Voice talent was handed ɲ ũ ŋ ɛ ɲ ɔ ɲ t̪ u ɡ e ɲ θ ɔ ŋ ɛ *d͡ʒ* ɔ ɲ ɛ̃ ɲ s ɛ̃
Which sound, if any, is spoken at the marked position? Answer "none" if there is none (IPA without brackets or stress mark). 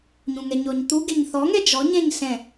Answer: d͡ʒ